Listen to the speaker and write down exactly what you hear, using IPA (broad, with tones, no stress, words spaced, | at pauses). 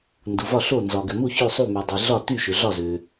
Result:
ndu˩vɒ˥˩ɬo˥˩ nzɒ˩ɡʏ˩mu˥˩ çø˥˩sˤu˥˩my˩ dˤɛ˩ ɮɒ˥˩ty˥˩ʃʏ˩ ɮɒ˥˩zø˩